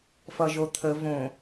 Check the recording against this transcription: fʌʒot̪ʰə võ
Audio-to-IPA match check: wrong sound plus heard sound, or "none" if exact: none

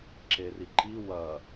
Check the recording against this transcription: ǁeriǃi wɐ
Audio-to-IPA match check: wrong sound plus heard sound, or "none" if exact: none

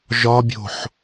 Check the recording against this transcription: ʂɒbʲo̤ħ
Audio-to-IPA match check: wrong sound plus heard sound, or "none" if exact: ʂ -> ʒ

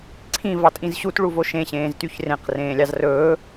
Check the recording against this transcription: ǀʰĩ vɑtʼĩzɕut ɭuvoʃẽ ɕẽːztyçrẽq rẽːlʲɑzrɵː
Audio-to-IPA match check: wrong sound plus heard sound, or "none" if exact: none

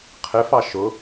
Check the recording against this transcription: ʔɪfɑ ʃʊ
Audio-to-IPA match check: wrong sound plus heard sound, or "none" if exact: ʔ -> qʰ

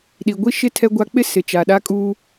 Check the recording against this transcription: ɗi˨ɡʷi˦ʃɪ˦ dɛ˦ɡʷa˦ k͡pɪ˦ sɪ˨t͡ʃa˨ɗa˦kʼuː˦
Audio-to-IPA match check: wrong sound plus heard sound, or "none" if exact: d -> tʰ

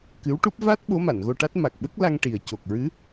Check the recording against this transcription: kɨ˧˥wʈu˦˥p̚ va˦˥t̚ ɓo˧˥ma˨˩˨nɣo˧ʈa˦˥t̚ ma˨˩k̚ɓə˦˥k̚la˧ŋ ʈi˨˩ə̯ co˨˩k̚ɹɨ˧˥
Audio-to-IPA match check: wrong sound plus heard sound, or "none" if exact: none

